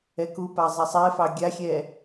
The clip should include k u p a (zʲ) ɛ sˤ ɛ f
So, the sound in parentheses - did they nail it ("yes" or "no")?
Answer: no